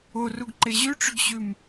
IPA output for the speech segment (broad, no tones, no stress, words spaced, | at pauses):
oruɡǃe ʑʉʈ͡ʂʏɡɕʉm